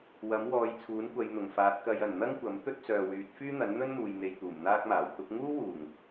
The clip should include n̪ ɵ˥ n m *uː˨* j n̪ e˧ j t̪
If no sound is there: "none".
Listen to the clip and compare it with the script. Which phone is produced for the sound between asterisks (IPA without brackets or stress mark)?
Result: uː˨